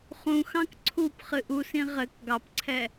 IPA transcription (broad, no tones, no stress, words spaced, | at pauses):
χũxɑ̃k ǀʰup χɨʔusĩ ʁɘk ɡɑpǀʰɛ